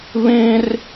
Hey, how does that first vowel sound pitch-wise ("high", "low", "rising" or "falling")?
high